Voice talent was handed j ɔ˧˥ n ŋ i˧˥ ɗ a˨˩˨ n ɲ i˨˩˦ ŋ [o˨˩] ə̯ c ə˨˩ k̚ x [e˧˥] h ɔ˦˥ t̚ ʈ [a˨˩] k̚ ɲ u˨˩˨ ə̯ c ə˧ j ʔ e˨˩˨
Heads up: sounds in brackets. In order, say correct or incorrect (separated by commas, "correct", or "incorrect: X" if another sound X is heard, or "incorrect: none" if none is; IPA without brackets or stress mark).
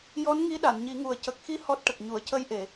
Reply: incorrect: u˨˩, incorrect: i˧˥, incorrect: ə˨˩